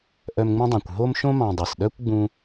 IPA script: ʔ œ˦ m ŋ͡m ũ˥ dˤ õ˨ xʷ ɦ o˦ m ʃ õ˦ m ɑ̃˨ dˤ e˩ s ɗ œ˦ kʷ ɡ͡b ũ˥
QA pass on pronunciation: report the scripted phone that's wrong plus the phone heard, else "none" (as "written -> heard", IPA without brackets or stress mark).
xʷ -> kʷ